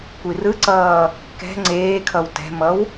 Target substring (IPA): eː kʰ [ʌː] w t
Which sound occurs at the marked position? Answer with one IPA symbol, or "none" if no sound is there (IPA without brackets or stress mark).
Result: ʌ